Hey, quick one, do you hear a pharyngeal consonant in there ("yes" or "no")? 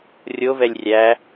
no